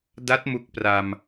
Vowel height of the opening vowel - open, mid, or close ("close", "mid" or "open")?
open